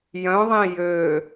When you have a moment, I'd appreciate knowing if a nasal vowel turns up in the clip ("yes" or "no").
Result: yes